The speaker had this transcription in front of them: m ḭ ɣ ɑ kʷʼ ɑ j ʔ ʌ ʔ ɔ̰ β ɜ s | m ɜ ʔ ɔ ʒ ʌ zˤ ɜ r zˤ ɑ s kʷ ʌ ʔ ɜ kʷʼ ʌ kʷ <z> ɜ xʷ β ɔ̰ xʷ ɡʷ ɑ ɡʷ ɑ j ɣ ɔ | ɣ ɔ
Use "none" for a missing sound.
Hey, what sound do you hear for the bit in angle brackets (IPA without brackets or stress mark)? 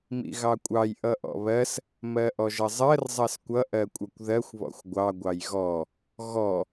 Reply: ð